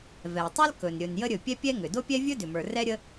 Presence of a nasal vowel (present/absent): absent